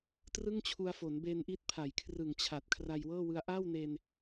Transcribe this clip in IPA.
t r ɯ˥˩ ŋ t͡ɕʰ u˧ a̯ f o˩˦ n b e˧ n ʔ i˦˥ t̚ pʰ a˩˦ j kʰ r ɯ˨˩ ŋ t͡ɕʰ a˨˩ t̚ kʰ r a˧ j w ɤː˥˩ w ɯ˧ a̯ ʔ a˥˩ w n e˧ n

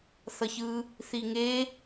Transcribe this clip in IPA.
θ ʌ ç ɯ | θ i ŋ e

